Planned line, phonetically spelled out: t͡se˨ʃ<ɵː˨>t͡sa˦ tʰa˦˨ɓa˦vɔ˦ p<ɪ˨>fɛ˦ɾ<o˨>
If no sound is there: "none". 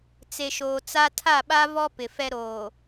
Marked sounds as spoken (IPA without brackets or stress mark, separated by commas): oː˨, ɪ˨, oː˨